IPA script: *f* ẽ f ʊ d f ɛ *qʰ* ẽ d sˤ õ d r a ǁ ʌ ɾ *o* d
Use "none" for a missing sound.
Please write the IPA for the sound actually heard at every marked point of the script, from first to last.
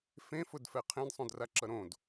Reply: f, qʰ, õ

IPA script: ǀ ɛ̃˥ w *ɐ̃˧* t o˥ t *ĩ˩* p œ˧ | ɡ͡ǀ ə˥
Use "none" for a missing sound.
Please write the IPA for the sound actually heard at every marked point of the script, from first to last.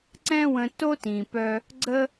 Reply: ə̃˧, ĩ˩

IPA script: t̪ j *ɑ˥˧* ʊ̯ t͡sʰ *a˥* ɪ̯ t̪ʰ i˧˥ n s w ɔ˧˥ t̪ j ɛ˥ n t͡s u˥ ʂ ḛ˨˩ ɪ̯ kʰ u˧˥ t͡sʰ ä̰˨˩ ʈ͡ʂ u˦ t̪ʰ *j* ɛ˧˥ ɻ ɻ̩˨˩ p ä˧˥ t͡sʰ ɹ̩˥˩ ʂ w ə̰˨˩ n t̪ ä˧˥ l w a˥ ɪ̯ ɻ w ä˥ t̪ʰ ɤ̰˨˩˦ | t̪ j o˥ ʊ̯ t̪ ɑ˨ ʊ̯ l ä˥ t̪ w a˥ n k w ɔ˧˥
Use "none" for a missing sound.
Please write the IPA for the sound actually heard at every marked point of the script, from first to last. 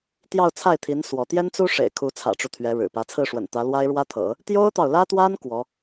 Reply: ɑ˥˧, a˥˩, ɥ

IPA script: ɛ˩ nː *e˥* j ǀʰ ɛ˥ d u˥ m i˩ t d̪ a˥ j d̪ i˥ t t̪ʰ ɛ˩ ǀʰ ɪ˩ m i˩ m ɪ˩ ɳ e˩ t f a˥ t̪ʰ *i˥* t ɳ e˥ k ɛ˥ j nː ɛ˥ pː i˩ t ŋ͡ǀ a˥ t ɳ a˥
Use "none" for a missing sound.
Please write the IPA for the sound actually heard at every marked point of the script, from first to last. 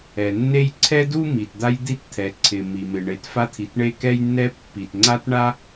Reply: e˥, i˩

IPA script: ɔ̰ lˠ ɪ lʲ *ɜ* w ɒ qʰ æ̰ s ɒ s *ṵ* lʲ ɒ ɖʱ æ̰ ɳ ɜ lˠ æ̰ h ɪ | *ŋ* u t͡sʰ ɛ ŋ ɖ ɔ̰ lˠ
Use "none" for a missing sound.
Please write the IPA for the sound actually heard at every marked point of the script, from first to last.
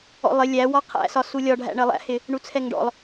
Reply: æ, u, ɳ

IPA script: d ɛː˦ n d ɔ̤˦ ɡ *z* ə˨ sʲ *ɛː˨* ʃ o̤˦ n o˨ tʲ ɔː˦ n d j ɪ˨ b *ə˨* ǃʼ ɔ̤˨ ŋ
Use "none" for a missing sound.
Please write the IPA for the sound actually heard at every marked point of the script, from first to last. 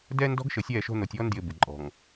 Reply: ʃ, ɛː˦˨, ɪ˨

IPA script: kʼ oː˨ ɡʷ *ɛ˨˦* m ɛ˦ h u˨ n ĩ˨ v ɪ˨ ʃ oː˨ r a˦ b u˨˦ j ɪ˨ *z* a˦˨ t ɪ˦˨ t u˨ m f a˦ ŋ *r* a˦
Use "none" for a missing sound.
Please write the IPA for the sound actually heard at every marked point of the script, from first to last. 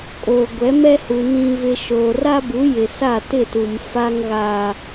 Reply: ɛ˨˦, s, ɣ

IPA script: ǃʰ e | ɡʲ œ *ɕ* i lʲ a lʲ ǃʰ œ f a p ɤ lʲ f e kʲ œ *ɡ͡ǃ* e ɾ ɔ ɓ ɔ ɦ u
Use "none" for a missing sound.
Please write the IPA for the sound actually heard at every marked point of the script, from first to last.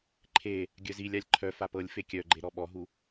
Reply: z, ɡ͡ǃ

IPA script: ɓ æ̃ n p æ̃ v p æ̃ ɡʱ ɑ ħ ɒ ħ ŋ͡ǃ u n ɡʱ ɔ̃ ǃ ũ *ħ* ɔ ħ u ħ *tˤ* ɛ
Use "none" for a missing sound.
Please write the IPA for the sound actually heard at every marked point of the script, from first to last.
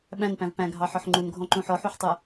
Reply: ħ, tˤ

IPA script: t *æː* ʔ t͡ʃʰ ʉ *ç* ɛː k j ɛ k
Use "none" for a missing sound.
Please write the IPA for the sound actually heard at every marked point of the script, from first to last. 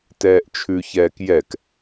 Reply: ɛː, ç

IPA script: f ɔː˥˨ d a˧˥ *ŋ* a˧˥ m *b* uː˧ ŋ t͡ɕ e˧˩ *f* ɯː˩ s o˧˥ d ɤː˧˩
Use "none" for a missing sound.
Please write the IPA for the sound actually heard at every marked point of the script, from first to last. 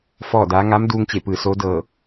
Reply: ŋ, d, p

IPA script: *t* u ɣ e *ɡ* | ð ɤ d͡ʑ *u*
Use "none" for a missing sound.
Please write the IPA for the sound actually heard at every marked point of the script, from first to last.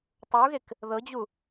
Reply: tˤ, k, u

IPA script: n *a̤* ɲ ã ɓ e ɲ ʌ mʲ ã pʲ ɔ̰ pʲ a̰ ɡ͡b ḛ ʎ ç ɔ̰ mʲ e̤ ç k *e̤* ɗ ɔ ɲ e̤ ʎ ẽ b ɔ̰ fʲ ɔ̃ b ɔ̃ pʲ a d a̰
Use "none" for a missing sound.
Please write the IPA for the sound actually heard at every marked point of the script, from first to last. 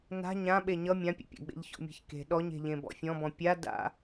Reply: a̤, e̤

